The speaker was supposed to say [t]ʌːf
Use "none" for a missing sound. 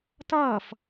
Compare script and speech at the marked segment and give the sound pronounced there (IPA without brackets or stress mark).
t